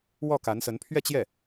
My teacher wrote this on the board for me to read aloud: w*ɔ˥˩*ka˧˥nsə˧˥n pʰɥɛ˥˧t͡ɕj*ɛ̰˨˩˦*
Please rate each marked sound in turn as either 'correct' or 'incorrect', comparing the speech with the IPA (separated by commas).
correct, incorrect